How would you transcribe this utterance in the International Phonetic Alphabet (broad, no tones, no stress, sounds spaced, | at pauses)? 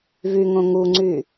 v y ŋ õ ŋ u ŋ͡ǀ y